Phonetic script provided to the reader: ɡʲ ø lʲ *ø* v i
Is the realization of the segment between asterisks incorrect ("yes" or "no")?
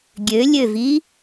no